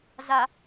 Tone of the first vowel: low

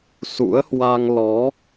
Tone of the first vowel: rising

